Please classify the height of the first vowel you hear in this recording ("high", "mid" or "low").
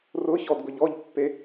high